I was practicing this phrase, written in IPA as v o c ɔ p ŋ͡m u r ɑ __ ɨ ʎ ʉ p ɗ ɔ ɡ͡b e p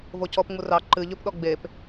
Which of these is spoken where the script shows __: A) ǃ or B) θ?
A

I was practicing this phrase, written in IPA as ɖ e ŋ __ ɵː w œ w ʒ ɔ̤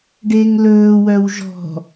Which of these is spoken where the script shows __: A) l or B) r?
A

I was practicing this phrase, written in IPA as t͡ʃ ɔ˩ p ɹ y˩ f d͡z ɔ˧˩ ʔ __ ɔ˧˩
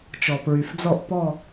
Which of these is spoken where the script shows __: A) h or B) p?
B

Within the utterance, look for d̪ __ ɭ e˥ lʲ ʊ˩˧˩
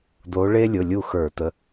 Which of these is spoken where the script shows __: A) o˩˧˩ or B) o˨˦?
B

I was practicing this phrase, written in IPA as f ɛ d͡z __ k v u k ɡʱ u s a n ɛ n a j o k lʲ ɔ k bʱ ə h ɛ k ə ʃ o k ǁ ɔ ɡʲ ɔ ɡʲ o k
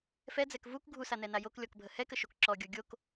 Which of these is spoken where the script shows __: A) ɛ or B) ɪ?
A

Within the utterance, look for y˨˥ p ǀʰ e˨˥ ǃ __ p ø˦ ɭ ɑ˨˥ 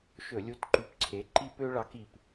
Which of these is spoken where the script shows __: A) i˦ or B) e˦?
A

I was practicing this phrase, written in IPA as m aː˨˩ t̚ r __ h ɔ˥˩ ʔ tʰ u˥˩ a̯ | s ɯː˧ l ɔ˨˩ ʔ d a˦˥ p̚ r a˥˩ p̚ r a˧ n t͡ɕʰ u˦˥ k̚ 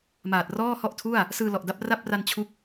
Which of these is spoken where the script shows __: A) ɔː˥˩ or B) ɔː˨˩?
A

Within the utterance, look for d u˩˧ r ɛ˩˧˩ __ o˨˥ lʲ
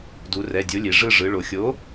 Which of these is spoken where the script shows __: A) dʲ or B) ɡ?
A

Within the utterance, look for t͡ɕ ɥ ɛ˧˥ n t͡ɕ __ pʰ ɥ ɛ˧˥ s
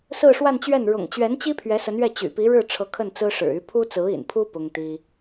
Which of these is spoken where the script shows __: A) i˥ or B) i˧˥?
A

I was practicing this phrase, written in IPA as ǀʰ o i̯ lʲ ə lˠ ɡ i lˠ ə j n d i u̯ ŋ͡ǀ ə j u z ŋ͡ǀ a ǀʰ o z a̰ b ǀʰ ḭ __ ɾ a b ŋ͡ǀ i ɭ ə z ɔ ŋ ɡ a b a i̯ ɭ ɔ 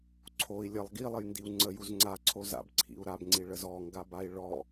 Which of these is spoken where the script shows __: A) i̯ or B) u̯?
B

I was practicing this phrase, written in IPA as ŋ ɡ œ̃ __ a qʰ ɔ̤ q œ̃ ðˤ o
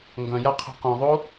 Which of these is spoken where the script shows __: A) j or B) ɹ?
A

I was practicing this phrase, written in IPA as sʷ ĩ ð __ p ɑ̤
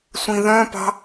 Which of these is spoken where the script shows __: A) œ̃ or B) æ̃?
A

